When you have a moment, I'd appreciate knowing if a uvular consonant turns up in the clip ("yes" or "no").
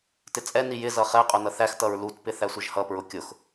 yes